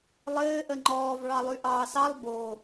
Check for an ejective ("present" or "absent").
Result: absent